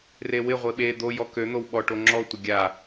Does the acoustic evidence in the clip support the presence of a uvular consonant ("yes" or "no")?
yes